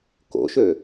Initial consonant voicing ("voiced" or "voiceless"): voiceless